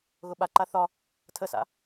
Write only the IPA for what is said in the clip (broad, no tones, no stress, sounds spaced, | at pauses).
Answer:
ɣ ʊ ɓ a ǃ a θ ɒ | tʰ ə s a̰